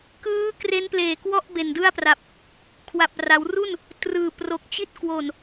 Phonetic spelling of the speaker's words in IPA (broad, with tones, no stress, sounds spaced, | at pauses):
k ɯː˦˥ k r e˦˥ n p l eː˨˩ k w ɔ˥˩ ʔ b e˨˩ n d ɯ˥˩ a̯ p r a˨˩ p̚ | kʰ w a˨˩ p̚ r a˩˦ w r u˥˩ n | t r ɯː˨˩ p r o˨˩ k̚ t͡ɕ i˦˥ t̚ k w o˨˩ n